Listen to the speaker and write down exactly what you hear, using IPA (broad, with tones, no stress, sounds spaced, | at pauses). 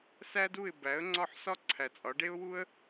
s æ˥ d u˥˩ ɪ̯ b æ˩˥ ə̯ ŋ͡ǀ ɒ˥˩ ħ s ɒ˥ ǀʰ æ˩ t͡sʼ ɒ˩˥ ɖ e˥ ʊ̯ w u˥ ə̯